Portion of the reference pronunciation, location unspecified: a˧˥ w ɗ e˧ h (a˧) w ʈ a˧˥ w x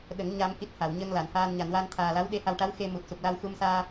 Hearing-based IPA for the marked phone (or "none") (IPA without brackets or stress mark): a˧